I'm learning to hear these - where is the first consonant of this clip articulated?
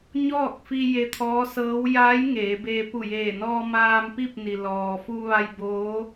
palate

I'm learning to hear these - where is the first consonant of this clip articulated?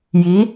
palate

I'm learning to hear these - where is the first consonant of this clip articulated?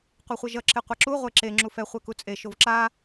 uvula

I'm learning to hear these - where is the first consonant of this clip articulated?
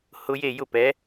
throat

